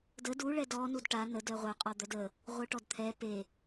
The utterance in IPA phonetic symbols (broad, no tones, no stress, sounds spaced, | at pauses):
d ə d u ɭ ɛ d ɔ n u d ʈ a n ə d œ ʁʷ œ qʼ ɔ d̪ œ d ə | ʁʷ œ ʈ ɔ d t̪ʰ ɛ p e